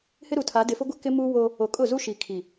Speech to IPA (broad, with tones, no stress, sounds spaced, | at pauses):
h ɪ˦ ɾ u˨ tʰ a˨˦ d ɪ˨ f ʊ˦ ɡʷ ɪ˦ k ɪ˦ m uː˦ w o˦ | o˨ kʼ ʊ˦˨ z u˦ ʃ i˨ kʰ i˨